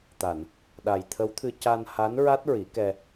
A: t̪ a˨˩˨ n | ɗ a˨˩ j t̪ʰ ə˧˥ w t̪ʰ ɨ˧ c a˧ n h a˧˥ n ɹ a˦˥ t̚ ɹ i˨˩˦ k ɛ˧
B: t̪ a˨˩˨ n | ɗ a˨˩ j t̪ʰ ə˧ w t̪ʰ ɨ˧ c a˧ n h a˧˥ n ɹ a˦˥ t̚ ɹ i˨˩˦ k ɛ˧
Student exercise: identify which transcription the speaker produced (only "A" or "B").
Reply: A